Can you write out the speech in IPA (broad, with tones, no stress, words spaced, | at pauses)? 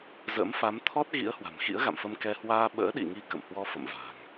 zə̰ː˧˥mfa˨˦m t̪ʰɔ˦˥t̚ ɣḭ˧˥ə̯hwa̤˨˩mxḭ˧˥ə̯ ɣa̰˧˨mfə˧mkɛ˧ hwaː˧ ɓə̰ː˧˥ɗḭ˧˨ŋi˧ kə̰˧˨mhwɔ˧fə̰˧˨m va̤˨˩ŋ